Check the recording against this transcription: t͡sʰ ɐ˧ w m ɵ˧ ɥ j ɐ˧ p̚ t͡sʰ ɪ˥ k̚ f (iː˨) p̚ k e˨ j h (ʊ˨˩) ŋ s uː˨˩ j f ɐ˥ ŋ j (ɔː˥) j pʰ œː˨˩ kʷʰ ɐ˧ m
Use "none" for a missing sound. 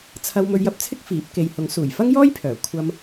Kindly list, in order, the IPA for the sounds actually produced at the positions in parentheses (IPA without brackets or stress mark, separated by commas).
iː˨˥, ʊ˨˥, ɔː˥